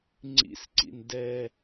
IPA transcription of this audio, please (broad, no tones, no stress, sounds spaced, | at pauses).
ŋ͡ǀ ḭ s ǀ ḭ n d ɛ